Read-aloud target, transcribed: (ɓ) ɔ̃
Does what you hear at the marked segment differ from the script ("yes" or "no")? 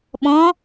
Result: no